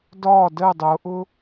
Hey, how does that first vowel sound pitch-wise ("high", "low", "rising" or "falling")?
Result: falling